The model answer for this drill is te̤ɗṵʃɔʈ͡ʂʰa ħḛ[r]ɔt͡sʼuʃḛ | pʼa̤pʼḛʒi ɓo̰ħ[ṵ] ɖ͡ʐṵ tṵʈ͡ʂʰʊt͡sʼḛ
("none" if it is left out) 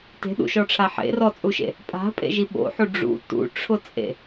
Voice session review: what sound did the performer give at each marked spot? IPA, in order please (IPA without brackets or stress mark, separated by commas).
r, u